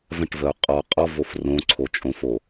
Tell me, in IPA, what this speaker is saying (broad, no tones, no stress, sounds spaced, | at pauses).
v ə̃ ʈ v ə u̯ qʼ ɔ qʼ ɔ v o f r õ ǀʰ o t͡ʃʼ õ f o